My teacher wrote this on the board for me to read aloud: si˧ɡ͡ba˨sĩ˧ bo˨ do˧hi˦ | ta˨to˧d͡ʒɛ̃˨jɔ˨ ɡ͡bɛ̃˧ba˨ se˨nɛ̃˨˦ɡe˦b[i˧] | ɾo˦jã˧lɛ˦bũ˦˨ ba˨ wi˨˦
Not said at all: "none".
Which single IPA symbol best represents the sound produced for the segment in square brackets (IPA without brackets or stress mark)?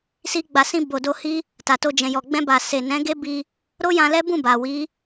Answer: i˧